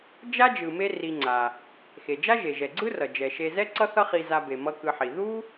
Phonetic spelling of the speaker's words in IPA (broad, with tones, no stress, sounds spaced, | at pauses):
d͡ʒ a˥ d͡ʒ ɯ˨ m e˦ r i˨ ŋ͡ǀ a˩ | x e˩ d͡ʒ a˥ ʒ e˩ ʒ ɛ˩ ɡ͡ǀ ɯ˦ r ʌ˩ d͡ʒ ɛ˩ ʃ e˨ z ɛ˦ ǀ ʌ˦ θ ʌ˦ χ i˨ z a˨ b e˩ m ʌ˨ k ɯ˨ ħ i˩ ð u˥